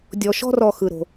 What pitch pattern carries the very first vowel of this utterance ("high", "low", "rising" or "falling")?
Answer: low